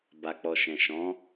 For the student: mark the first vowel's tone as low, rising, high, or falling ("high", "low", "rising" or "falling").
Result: low